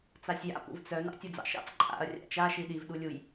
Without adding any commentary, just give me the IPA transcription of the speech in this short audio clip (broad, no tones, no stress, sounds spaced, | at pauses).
t͡s a sʲ j a̰ p ṵ v t͡s œ n ɑ̰ tʲ u d͡z ɑ̰ ʃ ɑ̰ t͡s ǃʼ a̰ ɐ̯ rʲ a̰ t͡ʃ a ʃ i ɗ i v ɗ u lʲ u j